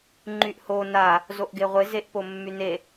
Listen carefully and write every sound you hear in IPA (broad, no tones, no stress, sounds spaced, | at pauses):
ŋ͡ǃ y ʔ h o n a | z o ʔ ɡ e ʁʷ e z e ʔ p o mː y n e